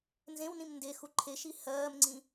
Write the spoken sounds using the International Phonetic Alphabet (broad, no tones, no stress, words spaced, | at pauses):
nzẽwnĩm nde xuǃʰeʃi hɜːmŋ͡ǀĩ